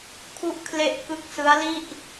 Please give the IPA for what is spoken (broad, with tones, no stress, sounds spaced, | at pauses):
kʰ u˦˥ ʔ kʰ l e˦˥ ʔ k ɯ˦˥ k̚ s ɯ˦˥ a̯ l i˥˩ ʔ